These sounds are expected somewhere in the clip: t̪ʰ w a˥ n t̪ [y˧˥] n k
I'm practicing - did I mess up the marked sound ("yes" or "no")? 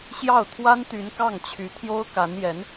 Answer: no